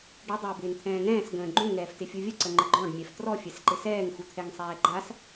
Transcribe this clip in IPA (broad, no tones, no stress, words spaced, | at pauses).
ɖɪ dˤɪːbɪːnt̪ʰɛ̃ːŋɛ̃ːs ɡə̃ːɡ͡ǃũ ŋɛːftɪfʲuvʲə ǀəŋ͡ǃəɡ͡ǃɔ̃ɖ mʲɛftrɔ fʲɛsǃɪsɛːŋ xut̪ʰɛŋsˤɛːɡ͡ǃas